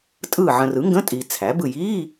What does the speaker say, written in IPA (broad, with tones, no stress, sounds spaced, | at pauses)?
tʼ ɯ˦˨ ʕ ə̃˨ r ɯ˩˥ ŋ ɡ ə̃˧˥˧ tʼ i˨ t͡sʰ æ˩˥ b ɯ˦˨ j i˧˥˧